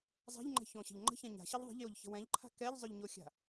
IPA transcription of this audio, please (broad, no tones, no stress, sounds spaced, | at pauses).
zˤ a̤ ʎ ŋ͡ǃ ɛ̤ ç õ ɕ ə̤ ʎ ŋ͡ǃ ə̤ ç ã ɲ a̤ ɕ ə ʎ ðˤ ə̤ ʎ j o ʎ ç ə̤ w ɛ̃ ʎ ǃʰ a̤ k ɛ ʎ zˤ ʏ ʎ ɲ o xʲ a̤